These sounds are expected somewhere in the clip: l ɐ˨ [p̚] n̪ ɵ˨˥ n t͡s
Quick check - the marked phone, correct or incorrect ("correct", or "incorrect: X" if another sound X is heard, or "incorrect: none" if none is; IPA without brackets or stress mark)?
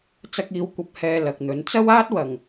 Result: incorrect: k̚